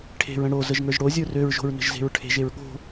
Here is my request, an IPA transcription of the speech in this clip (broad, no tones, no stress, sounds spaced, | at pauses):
ʈʰ e̤ ɹ ə̃ ɽ o z ə ʒ ŋ ə˞ ʒ ɽ o zʲ ə˞ r ø ɹ ʒ o̤ ɹ n ə̤ ʒ z e̤ ɹ ʈʰ e̤ ʒ e ɹ ɠ o̤